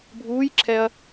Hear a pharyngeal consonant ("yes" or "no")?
no